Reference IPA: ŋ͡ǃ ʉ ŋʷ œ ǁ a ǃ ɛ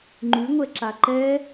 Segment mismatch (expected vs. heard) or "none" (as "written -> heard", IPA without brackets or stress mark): œ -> ɛ